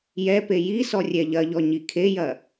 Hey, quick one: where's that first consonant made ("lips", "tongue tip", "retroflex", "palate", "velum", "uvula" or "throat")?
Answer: palate